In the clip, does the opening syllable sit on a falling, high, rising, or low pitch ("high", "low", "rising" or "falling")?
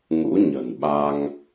rising